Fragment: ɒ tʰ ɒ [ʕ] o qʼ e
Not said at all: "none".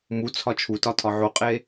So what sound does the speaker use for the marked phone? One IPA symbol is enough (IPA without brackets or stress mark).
ʕ